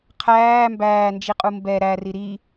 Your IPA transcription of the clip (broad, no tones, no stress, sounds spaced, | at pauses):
qʰ æː m b æː n d͡ʒ i qʼ u m b ɛ ɾ æ r i ɾ i